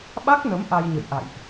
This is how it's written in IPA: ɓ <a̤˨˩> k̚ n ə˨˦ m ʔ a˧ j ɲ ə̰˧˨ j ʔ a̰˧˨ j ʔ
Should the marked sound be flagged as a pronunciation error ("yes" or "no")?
yes